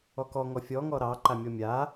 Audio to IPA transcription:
ɔkɔ ŋɔfʲɔ ŋɔɾɑ ǃamʲɔmʲa

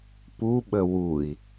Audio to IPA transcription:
puɓə wui̯

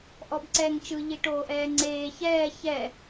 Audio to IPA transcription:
ʔɔbǀɛːŋt͡ʃɯ ʎiʈoːʔɛːŋ͡ǀeː çɛː çɛ

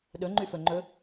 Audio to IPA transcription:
ɗɵŋ͡ǃyfɵŋ͡ǃɵ

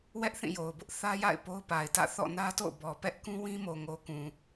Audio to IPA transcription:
wɛ˦ʔθĩ˦˨jo˨ʊ̯ bʊ˦ʔθä˦ja̰˦˨ɪ̯ po˦ʊ̯pa˨ɪ̯tä̰˦˨ θɔ̰˦˨nä˦to̰˦˨ʊ̯bɔ˨ pɛ˦ʔkũ˦ wĩ˦mo˨ŋo˨ kũ˨

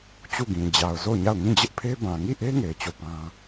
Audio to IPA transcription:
t͡ɕu˦˨ɡĩ˨ d͡ʑa˨ʊ̯ zo˦˨ʊ̯ɲa˦˨ʊ̯ ŋĩ˦˨d͡ʑɪ˦ʔpʰe˦ bã˨ŋi˦˨ʔe˦ ŋe˨ɪ̯ t͡ɕo˦˨pã˦

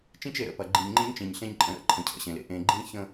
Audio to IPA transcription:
t͡ʃĩ˦t͡ʃe˨ɾə̰˦˨pɐ˨ ɡ͡ǃĩ˨ɲŋ͡ǃĩ˦ɲt͡ʃĩ˨ɲ ɬẽ˦ɲǃʼə̃˨˦ɾə̰˦˨ ǃʰə̃˨cʰə̰˨ɕẽ˨lḛ˨ ʔẽ˨ɡ͡ǃĩ˦çə̃˦

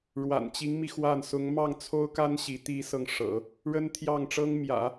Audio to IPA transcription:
ɻwa̰˨˩nt͡ɕi˧˥ŋmi˧ xwa˥˩n sʊ˧˥ŋmɑ˥˩ŋt͡sʰo˥ʊ̯ka˥n ɕi˧˥t̪i˥sɤ˥˩ŋ ʂɤ̰˨˩˦ | ɻə˥nt̪ʰjɑ˥˩ŋ ʈ͡ʂɤ˥ŋ mjä̰˨˩˦

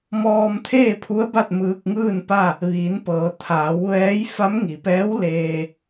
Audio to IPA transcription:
mɔː˧mt̪ʰeː˥˨pʰu˧˥ə̯ ba˥˨t̚mɯː˧k̚ŋɯː˥˨npa˥˨ | ʋiː˩˧npɤː˩˧ t̪ʰaː˩˧wʋɛː˧˥j fa˧˥mŋi˩pɛː˧˥w leː˧

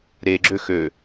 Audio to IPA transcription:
ɾeɡ͡ǁø xø

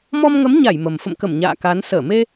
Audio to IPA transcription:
mɔ˧mŋə˨˦mɲa˧˩j mə˨˩m fə̰˧˨mkə˧˩m ɲa̰ː˧˨ka˨˦n səː˧˩me˧

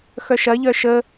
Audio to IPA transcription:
xœʃɐ ʎœʃə

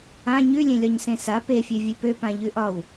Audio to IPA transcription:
ã ɲʉlʲẽlʲɒɲ sẽsa pefʲø vʲøpøpã ʎʉʔɒw

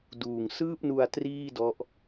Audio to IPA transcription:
duː˨˩ŋsɯː˥˩p̚nu˧a̯ triː˥˩dɔ˦˥ʔ

